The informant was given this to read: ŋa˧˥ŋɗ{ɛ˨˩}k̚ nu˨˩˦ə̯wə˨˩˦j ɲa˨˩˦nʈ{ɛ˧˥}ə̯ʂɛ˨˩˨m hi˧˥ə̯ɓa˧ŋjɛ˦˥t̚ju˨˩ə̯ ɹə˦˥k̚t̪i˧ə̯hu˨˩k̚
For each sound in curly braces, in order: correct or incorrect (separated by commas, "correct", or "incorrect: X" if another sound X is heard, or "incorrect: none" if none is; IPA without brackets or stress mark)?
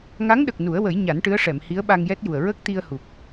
incorrect: ə˨˩, incorrect: ɨ˧˥